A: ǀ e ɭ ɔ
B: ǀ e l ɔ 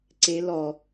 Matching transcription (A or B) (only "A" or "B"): B